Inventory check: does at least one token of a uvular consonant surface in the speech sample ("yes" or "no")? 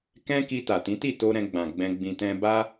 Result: no